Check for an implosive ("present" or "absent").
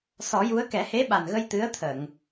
present